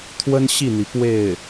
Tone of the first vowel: high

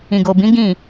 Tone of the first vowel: low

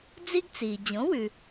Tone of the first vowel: high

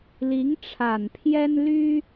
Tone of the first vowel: rising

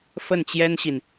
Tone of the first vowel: falling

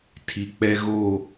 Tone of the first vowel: low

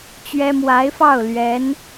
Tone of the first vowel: high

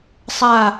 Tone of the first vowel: falling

